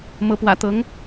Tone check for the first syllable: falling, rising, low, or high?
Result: rising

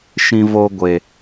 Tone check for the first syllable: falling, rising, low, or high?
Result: high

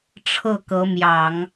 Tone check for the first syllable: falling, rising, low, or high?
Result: falling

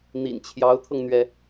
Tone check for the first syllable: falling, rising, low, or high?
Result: low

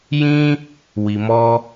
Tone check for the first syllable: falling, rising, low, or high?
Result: high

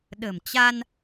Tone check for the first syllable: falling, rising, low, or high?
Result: low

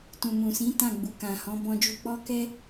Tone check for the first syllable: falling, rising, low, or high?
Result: low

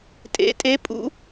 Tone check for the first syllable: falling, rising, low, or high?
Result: rising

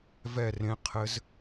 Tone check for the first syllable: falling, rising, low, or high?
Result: falling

